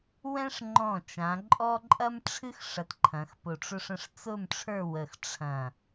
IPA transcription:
w ɛ̃˥ ʂ ŋ͡ǃ ɔ̃˧˩ t͡ʃ ã˩˧ ǃʼ ɔ˥ ǃʼ ɐ˥ m ʈ͡ʂʰ ɨ˥ x ʂ ɐ˧˩ t ǃʰ ɐ̃˩˧ x p ʊ˧˩ ʈ͡ʂ ʊ˥ ʂ ə̃˥˧ ʂ t͡s ʊ˥˧ m ʈ͡ʂʰ ə˞˥˧ w ə˧˩ x ʈ͡ʂʰ ɐ̃˧˩

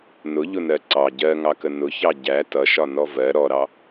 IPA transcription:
n ʊ ʎ ʊ n ɜ ǀ ɑ ɟ ɜ ŋ ɑ k ə n ʊ ç ɑ ɟ æ t ʌ ʃ ɒ n ɔ v ɜ ɾ ɔ ɾ ɑ

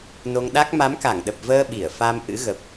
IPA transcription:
n o˧ ŋ ɗ a˦˥ k̚ m a˨˦ m k a˧˩ ŋ ɗ ə˨˩ p̚ v əː˧ ɓ i˧˩ ə̯ f a˧ m ʔ ɨ̰˧˥ ɣ ə˨˩ p̚

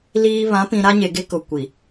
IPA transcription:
l iː˨ β ã˨˦ p ĩ˨ ɾ a˦ ɲ e˨ ɡ e˦ k ʊ˨ kʷ i˨

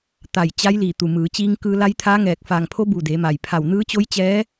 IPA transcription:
t̪ a˧˩ j t͡ɕ a˧˥ j l iː˧˩ t̪ u˩ m ɯː˩˧ t͡ɕ iː˧ ŋ k ɯː˧ l a˧˥ j t̪ʰ aː˧˥ ŋ ɛː˧˩ k̚ f aː˧˩ ŋ pʰ o˧˥ b u˧˩ d eː˩˧ m a˩ j pʰ a˧˩ w n ɯː˧˥ t͡ɕ o˧˥ j t͡ɕ ɛː˧˥

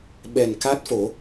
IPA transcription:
ɓ ɛ˨˩ n k a˦˥ t̚ f o˨˩˦

